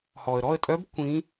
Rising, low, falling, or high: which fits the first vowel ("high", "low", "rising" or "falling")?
low